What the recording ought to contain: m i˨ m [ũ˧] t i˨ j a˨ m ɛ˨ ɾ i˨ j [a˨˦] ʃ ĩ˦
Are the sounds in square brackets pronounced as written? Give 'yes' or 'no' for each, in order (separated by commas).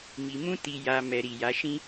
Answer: yes, yes